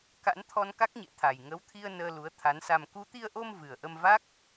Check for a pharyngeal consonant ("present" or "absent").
absent